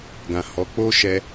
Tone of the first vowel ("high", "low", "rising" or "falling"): low